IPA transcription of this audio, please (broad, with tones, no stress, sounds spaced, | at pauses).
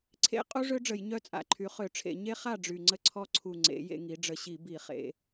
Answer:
ǀʰ ḛ˦˥ qʼ u˦˥ ʐ ø˦˥ ɖ͡ʐ ə˧˩˧ j ɲ œ˥˨ t͡sʼ a̰˧˩˧ ǃʰ y˩˧ χ ø˧˩˧ ʈ͡ʂʰ ḛ˧˩˧ ɲ e˦˥ χ a˥˨ ɖ͡ʐ y˨˩ ŋ͡ǀ ə˦˥ ǀʰ ɔ˦˥ ǀʰ u˨˩ ŋ͡ǀ ḛ˩˧ j ḛ˧ ŋ i˩˧ ɖ͡ʐ ə˨˩ ɕ i˧˩˧ b i˧˩˧ χ ḛ˩˧